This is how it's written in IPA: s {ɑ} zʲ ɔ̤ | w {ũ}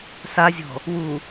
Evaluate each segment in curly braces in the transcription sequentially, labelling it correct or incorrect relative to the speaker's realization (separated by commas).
incorrect, incorrect